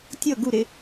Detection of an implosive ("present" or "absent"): absent